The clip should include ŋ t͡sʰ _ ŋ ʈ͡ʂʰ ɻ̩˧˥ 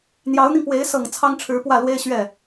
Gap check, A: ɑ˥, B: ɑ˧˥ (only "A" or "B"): A